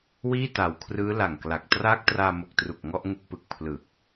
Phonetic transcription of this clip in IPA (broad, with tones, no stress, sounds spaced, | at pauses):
w iː˥˩ t a˨˩ w kʰ r ɯː˦˥ l a˨˩ ŋ k l a˨˩ k̚ t r aː˦˥ k̚ t r aː˧ m o˨˩ k̚ t r u˨˩ k̚ ŋ ɔ˥˩ ʔ ŋ u˦˥ k̚ p ɯ˨˩ k̚ pʰ l ɯ˨˩ k̚